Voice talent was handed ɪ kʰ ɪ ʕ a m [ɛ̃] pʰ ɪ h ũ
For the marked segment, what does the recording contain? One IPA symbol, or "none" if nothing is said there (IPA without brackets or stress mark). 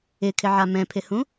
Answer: ɛ̃